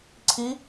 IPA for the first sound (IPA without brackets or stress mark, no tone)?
ǀʰ